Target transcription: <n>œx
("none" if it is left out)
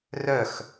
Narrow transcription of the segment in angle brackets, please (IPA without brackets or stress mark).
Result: r